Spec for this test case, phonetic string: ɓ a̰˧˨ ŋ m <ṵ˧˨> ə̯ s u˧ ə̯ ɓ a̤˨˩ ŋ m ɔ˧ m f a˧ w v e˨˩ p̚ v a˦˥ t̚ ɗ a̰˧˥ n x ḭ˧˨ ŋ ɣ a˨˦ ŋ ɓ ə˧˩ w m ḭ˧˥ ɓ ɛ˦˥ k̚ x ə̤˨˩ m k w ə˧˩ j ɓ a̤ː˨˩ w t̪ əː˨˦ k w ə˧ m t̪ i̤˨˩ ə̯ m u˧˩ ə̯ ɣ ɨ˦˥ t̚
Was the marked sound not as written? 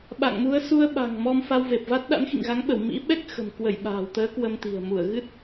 yes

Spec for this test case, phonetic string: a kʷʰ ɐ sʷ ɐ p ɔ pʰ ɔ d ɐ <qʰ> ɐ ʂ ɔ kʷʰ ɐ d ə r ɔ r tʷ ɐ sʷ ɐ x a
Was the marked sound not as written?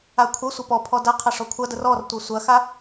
no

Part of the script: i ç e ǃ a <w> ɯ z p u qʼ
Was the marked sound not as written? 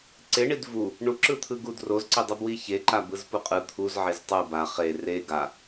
yes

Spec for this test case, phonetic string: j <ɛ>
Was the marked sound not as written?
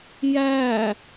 yes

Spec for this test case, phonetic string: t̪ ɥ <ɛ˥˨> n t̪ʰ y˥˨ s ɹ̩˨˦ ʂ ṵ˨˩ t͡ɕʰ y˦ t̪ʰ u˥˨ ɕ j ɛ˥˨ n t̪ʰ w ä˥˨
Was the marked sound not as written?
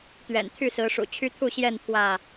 yes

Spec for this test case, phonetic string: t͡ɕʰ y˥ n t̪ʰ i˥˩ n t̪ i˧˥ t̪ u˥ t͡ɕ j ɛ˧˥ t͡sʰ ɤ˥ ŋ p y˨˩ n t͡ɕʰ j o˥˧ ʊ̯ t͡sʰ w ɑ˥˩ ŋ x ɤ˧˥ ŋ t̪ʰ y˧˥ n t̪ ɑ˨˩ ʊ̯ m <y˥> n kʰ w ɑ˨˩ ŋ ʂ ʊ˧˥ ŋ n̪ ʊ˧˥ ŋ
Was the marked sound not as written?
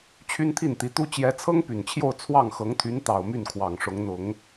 yes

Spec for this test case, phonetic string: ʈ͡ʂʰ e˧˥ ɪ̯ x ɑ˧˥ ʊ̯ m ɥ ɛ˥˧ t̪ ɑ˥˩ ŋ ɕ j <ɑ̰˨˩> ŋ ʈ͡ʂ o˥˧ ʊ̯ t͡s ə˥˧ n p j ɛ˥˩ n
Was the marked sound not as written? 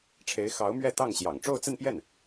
no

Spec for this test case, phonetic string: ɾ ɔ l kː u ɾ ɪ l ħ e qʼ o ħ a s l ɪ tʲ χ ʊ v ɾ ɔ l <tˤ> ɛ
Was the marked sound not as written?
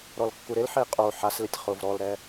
yes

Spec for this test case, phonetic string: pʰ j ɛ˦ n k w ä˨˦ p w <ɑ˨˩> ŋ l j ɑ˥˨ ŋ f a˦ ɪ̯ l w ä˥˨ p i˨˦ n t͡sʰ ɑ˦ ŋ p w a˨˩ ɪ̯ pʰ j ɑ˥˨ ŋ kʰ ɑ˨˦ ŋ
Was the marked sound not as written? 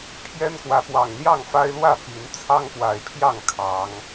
no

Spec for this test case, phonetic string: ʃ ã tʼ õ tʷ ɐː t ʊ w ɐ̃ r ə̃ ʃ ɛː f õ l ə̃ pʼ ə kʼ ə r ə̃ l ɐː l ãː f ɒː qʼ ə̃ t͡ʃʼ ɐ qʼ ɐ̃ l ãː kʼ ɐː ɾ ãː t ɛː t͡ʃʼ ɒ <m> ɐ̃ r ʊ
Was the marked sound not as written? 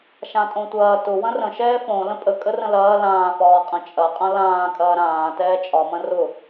no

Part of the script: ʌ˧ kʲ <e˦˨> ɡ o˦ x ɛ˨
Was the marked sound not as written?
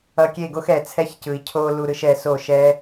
no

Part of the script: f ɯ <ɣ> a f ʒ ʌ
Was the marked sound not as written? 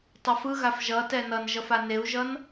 no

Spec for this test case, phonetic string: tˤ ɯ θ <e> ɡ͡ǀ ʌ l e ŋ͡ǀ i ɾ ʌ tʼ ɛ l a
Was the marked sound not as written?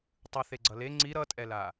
no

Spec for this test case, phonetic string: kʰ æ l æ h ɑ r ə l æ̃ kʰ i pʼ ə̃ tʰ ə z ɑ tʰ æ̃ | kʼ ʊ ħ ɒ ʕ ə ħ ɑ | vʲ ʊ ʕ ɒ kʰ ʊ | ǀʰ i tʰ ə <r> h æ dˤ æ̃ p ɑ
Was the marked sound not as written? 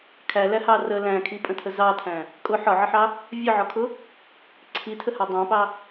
yes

